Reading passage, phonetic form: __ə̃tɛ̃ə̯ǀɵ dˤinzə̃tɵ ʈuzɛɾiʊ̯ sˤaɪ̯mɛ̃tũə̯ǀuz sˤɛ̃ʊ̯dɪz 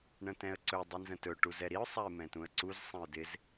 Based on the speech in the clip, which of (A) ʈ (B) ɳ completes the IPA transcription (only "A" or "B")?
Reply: B